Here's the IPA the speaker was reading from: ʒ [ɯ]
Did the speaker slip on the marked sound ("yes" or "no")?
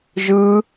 no